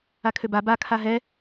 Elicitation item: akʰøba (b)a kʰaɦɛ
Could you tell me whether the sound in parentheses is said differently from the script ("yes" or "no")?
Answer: no